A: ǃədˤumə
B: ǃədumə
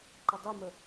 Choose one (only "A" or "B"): A